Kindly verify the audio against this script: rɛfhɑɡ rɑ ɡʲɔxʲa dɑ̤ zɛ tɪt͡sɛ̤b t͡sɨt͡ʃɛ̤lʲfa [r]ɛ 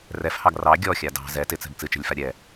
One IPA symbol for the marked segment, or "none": ɾʲ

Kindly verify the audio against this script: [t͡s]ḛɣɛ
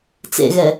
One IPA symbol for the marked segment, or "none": t͡s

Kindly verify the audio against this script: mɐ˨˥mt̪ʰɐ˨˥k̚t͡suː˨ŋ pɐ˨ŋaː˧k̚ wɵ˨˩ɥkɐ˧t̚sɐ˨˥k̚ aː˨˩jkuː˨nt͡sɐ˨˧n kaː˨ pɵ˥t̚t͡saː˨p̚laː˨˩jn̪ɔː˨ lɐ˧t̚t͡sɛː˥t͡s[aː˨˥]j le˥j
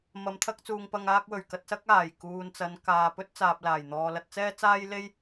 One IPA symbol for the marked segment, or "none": aː˥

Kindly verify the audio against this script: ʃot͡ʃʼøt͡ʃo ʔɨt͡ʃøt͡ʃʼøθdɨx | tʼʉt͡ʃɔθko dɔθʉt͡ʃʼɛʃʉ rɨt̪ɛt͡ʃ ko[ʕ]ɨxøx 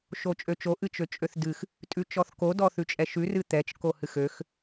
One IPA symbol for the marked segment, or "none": h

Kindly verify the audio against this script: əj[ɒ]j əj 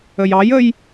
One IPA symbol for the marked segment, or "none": ɑ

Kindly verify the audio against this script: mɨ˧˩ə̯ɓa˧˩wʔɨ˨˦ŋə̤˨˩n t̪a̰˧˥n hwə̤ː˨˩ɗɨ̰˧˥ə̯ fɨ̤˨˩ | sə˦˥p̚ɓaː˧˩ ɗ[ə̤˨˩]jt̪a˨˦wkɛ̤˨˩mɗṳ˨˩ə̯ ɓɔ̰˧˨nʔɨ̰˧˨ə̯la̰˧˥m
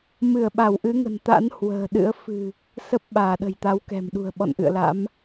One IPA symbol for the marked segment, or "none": ə̤˨˩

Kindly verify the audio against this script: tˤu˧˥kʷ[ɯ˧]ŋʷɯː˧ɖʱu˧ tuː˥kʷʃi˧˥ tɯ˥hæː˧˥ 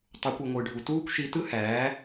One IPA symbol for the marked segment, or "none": ɯ˧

